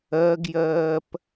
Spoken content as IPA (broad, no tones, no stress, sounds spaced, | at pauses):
ɜ ɡ j ɜː p